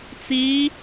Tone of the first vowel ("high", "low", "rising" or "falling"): rising